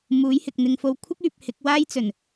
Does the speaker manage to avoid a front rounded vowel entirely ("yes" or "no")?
no